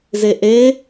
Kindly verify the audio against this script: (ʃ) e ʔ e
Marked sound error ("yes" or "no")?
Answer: yes